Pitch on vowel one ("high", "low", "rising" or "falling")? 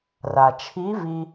low